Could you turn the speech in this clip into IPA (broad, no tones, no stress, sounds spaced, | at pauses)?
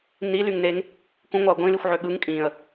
n i l y ŋ n e ŋ | k ũ ŋʷ ɑ ə̯ ɡʷ ĩ l i xʷ ʕ ø ɠ ɯ ŋ kʼ ĩ ə̯